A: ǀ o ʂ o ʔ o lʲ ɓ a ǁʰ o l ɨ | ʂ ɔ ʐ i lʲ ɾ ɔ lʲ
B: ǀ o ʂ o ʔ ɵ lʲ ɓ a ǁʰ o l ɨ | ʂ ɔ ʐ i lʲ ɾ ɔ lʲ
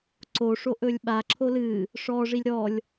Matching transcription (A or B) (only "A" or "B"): B